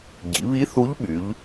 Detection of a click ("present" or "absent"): absent